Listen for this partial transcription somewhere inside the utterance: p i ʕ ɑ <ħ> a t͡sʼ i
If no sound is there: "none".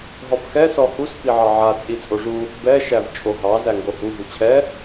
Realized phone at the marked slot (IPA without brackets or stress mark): ʕ